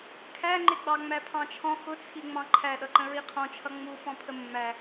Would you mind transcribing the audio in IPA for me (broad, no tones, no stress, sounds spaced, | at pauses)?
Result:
kʰ æ ŋ͡ǃ ɪ ɡ͡b ɑ ŋ͡m æ pʰ ɑ̃ t͡ʃʰ ɔ̃ x ʊ t͡sʰ i ŋ͡m ɑ̃ ǃʰ æ ɗ ʌ ǃ ə̃ ɹ i qʰ ɔ̃ t͡ʃʰ ʌ ŋ͡m u f ɔ̃ pʰ ə mː æ